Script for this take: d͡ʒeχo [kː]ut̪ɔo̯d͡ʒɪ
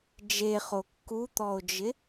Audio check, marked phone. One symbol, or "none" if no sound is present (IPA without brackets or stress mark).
kː